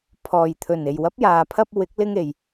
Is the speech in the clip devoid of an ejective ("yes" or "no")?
yes